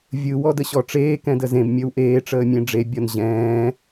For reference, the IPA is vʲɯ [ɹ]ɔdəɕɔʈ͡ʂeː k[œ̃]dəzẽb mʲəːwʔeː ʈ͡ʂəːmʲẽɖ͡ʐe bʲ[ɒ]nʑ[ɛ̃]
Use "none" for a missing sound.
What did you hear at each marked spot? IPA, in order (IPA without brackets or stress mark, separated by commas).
w, ɛ̃, ɒ, ɛ̃ː